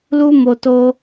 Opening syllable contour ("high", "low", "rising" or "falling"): high